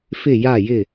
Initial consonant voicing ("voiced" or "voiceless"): voiceless